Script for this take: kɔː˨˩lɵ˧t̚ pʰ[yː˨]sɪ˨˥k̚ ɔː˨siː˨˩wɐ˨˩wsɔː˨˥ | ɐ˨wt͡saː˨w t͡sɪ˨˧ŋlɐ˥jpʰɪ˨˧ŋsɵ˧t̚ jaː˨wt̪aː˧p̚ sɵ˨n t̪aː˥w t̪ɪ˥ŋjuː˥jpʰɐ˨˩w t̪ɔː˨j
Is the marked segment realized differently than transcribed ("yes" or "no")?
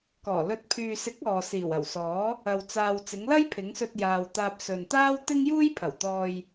no